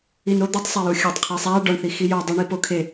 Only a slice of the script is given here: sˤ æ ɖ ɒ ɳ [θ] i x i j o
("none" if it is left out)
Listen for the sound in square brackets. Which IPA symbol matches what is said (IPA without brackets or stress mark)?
θ